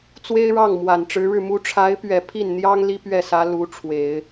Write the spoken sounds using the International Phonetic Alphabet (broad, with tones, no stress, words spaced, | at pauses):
t͡swe˥ɪ̯ɻɑ˥˩ŋmwa˨˩n ʈ͡ʂɻ̩˧˥ɻɻ̩˥˩mu˥ ʈ͡ʂʰa˧˥ɪ̯pɥɛ˨˩ pʰi˥˩nn̪jɑ˥ŋ li˥pɥɛ˥˩sä˧˥ lu˧˥ʈ͡ʂʰwe˨˩˦ɪ̯